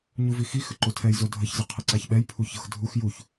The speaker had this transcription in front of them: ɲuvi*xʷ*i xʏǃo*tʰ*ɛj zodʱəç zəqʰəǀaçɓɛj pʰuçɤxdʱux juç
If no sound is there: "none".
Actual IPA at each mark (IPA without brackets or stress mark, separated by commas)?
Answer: x, tʰ